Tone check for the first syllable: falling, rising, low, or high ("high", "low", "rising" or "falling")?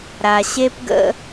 low